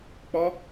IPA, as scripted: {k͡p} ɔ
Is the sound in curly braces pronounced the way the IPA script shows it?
yes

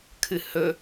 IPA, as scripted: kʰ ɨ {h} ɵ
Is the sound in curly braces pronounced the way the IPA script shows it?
yes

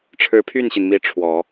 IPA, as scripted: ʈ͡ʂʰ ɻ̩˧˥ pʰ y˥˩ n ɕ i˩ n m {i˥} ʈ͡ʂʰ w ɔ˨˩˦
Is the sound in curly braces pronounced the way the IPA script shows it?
no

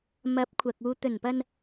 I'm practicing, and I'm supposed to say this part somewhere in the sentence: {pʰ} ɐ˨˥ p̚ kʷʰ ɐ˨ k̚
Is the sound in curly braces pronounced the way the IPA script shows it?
no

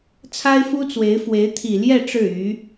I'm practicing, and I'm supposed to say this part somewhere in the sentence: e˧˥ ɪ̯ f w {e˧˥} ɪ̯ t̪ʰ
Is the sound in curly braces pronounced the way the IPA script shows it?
yes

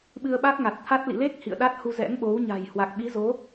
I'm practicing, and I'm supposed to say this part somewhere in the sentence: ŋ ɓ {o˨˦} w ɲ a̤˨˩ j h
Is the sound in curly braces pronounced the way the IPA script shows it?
yes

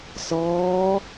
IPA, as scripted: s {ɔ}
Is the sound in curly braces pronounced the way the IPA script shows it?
no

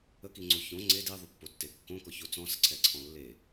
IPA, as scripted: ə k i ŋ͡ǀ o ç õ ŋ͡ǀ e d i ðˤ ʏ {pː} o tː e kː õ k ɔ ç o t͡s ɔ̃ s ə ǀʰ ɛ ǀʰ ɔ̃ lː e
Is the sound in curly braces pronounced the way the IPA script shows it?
yes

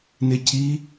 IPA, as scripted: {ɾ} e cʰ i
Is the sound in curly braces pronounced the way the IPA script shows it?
no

